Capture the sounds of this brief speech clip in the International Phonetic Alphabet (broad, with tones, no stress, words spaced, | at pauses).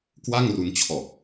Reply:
kwa˥˩ŋru˧nt͡ɕʰɔː˨˩k̚